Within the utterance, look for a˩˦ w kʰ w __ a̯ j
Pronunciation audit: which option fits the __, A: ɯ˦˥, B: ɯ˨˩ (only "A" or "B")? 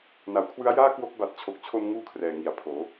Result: A